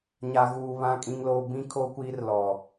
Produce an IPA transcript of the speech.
ɲ a˦ ɣ uː˦ β ã˦ kʼ ĩ˦ ŋ l oː˦ b ĩ˦ kʰ o˦ kʷ iː˦ r l ɔ˦

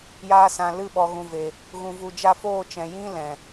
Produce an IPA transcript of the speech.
j aː˧ s ã˨ l ɨ˦˨ ɓ ɔ˨ ɣ ũ˨ v e˨ | ɣ ũ˧ v u˧ d͡ʒ a˦ f oː˦˨ t͡ʃ ɛ̃˨ j ĩ˦ l ɛ̃˨

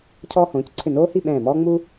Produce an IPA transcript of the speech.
cʰ ɔː˧ h õː˩˧ c ǀʰ ɪ˧˩ n oː˥ h i˥˧ ɓ ɛ̃ː˧˩ m ɔː˥ ŋ͡m u˥

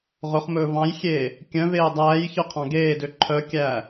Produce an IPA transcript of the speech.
ʁ ɵ χ m ɵː v ɑ̃ j xʲ eː | kʲ œ̃ v eː dˤ æː j ç œ qʰ ɑ̃ ɡ eː d ø ǃʰ œ kʲ æː

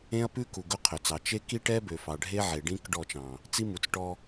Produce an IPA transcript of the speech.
ẽ˦ ɐ̯ p ʉ˦ k u˨ ɡ ɵ˦ qʰ ø˨ t͡s ɑ˨ t͡ʃ e˦ k i˦ ʈ ɛ˦ b ø˨ f ɑ˨ ɖʱ e˦ ʕ e˨ ɖ ĩ˦ k ɖ ɔ˦˨ t͡ʃ ɑ̃˨ | t͡s i˦ m u˨ t͡s ʈ ɔ˦

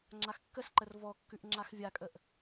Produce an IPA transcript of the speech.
ŋ͡ǁ a x kː ə s ǃ ə r v ɔ kː ʉ ʔ ŋ͡ǁ a x vʲ a kʼ ə ʔ

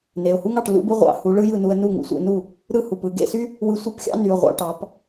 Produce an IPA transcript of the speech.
n e˩˧˩ ʊ̯ h u˥ ŋ ɑ˥˩ ʈ l ṵ˥ b ɯ˥ ʁʷ ɑ̰˧˩ h u˩˧ ɭ ɯ˥ j ɯ˥˩ n u˧ ə̯ n u˥˩ ŋ ṵ˩˧ sʷ ḛ˧ n u˥˩ | ɾ ɯ˥ h u˩˧˩ p ɯ˥˩ ɡ ḛ˥˩ s y˥ | w ɯ˧ sʷ ɯ˥˩ p xʲ ɑ̰˥ n y˩˧˩ ʊ̯ ʁʷ ɑ̰˧ ʈ ɑ˩˧ p

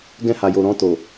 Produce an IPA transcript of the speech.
ɡ ɛ̃˧ h a˨ j o˨ ɾ ɔ̃˧ t o˨

